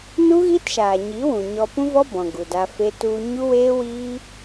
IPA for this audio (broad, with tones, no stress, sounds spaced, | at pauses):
n u˦ ɣ i˦ t ʃ aː˨ ɲ i˨˦ w ũ˨ ɲ ɔ˧ p ũ˦ v ɔ˦ b ɔ̃˨ ɡ u˨ d a˧ f e˦ t u˧ ɲ u˦ w eː˦ w iː˦